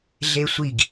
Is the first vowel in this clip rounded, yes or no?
no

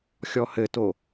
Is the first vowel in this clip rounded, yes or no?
yes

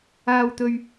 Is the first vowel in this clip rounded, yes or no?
no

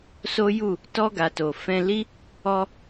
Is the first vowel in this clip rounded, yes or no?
yes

